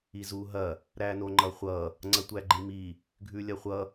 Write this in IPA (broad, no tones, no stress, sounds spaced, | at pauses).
i z u ɦ ɐ | ɾ æ n o ŋ͡ǃ ʌ χʷ ʌ | ŋ͡ǀ ɐ tʷ æ ɡ͡ǃ i m i | ɡʱ ʉ lʲ ɐ χʷ ʌ